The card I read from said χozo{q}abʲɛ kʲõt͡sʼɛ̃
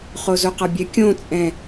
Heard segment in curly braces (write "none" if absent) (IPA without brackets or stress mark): q